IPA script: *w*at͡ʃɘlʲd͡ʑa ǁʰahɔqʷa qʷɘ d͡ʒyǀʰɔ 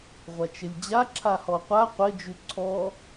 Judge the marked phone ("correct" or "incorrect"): incorrect